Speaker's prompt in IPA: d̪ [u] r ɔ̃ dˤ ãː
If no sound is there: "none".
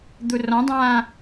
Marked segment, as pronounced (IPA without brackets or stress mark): u